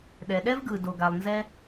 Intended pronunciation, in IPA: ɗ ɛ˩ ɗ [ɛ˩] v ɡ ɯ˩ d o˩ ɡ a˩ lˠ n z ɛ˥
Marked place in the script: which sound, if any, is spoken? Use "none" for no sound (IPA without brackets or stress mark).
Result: ɛ˥